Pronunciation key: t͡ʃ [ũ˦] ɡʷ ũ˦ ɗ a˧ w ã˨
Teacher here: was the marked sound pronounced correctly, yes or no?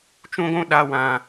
yes